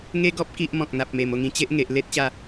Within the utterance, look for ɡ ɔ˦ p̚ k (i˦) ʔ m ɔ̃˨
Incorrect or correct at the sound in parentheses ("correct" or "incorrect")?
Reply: correct